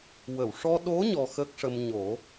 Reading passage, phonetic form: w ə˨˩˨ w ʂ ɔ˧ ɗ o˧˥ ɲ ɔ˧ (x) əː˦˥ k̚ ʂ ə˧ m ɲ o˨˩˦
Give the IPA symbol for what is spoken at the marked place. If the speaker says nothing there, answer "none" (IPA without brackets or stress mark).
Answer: x